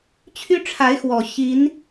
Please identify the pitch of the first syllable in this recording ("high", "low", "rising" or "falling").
high